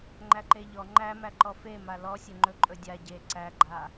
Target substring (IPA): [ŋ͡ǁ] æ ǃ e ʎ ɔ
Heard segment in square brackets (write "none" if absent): ŋ͡ǃ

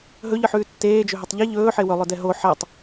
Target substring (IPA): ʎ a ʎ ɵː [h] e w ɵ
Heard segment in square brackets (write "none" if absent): ħ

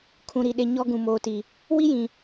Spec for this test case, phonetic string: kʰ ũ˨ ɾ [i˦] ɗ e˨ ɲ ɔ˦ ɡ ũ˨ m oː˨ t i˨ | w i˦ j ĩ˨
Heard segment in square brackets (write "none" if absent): i˨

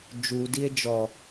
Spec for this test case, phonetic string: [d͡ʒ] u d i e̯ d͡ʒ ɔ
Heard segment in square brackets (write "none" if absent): d͡ʒ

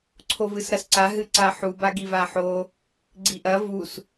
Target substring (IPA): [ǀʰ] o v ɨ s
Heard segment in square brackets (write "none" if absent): ǀʰ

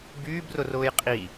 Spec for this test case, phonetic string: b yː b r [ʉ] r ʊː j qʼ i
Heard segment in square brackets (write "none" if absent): ʊ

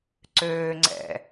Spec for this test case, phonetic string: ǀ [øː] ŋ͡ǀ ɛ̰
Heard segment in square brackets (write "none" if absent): øː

